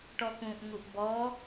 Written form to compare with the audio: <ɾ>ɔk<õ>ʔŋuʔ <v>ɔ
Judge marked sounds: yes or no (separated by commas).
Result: no, no, no